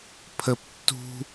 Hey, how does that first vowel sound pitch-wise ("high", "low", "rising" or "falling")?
high